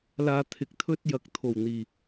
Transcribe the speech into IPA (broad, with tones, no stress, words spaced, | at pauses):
laː˧t̪ʰɪ˨˥k̚ t̪ʰɵ˥t̚ jɐ˨˥k̚t̪ʰo˨˩w n̪iː˨˩